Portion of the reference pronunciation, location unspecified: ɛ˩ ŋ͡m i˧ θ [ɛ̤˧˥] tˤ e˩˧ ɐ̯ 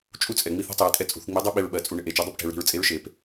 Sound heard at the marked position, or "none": ɛ̤˥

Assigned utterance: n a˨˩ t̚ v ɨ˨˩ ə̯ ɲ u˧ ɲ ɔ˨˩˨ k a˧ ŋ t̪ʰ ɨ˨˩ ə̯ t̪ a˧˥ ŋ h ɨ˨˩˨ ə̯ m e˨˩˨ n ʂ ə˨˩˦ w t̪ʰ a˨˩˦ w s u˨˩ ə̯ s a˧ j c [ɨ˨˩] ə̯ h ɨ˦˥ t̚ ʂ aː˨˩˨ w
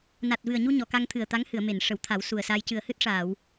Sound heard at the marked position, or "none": ɨ˨˩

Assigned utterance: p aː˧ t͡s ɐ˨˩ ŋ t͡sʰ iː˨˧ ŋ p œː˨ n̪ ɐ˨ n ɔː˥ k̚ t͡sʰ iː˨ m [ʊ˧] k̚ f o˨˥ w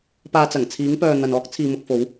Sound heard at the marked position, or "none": ʊ˧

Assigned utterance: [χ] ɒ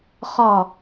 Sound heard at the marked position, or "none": χ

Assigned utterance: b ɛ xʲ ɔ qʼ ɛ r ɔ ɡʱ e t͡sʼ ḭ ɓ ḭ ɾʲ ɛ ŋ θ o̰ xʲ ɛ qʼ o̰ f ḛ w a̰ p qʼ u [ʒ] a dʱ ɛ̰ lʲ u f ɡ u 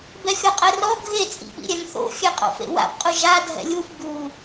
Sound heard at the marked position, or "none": ʒ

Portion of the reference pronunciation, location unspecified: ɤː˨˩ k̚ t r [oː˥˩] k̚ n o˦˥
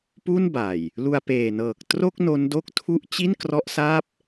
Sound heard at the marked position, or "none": o˥˩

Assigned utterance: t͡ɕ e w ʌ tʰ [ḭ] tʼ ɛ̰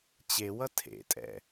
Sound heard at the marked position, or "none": ḛ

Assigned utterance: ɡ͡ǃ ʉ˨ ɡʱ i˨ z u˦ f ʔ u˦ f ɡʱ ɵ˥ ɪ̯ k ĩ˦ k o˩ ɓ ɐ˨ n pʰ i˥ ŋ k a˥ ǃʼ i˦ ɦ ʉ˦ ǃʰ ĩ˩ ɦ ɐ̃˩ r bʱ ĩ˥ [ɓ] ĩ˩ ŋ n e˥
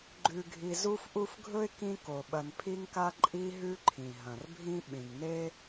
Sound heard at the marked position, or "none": ɓ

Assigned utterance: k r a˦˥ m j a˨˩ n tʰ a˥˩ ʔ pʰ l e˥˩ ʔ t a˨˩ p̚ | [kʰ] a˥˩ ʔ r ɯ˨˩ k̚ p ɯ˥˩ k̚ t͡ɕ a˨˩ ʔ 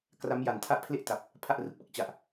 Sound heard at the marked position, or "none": pʰ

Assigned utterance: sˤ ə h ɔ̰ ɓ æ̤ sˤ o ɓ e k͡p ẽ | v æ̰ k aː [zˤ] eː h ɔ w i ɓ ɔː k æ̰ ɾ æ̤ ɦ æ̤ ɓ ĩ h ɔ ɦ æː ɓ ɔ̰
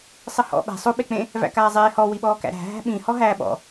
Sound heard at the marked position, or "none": zˤ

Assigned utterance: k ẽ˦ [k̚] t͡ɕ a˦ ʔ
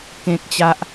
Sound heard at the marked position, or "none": k̚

